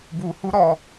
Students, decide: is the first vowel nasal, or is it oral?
oral